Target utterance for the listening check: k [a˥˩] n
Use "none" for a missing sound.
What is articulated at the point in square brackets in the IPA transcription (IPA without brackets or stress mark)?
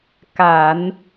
a˨˩˦